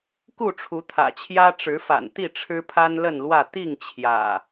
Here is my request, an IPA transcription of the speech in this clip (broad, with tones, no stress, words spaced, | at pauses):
ku˥˨ʈ͡ʂʰu˨˦t̪ʰä̰˨˩t͡ɕʰjä˦ ʈ͡ʂɻ̩˨˦fa̰˨˩nt̪i˥˨ ʈ͡ʂʰɻ̩˦pʰa˦nlə˥˨nlwä˥˨ t̪i˥˨ŋ t͡ɕʰjä̰˨˩